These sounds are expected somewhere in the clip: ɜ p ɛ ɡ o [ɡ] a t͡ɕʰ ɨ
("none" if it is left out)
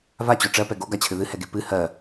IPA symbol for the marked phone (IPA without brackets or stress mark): ɡ